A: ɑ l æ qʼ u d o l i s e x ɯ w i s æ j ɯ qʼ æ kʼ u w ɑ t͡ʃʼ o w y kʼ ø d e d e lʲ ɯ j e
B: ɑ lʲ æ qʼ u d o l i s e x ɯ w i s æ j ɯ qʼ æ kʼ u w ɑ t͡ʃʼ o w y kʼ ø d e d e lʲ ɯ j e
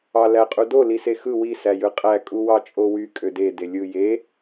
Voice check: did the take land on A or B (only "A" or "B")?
A